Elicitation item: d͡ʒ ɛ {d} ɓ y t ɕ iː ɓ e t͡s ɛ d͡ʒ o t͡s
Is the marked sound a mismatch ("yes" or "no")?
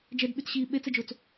no